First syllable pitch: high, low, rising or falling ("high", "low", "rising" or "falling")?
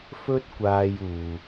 high